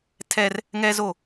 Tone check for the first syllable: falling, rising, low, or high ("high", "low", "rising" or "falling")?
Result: high